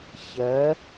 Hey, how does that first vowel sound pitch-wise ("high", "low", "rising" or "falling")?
rising